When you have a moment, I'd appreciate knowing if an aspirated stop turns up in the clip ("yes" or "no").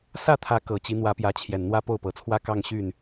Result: yes